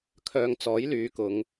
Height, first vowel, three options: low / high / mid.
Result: mid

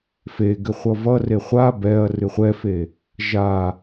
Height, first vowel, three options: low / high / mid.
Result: mid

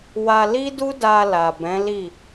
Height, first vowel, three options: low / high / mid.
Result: low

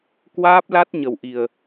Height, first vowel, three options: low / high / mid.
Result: low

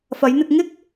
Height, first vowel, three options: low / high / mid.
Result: low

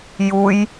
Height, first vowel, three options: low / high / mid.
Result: high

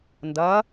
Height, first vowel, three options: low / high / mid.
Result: low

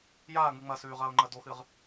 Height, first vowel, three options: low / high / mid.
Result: low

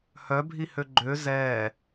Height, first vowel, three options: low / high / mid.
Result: mid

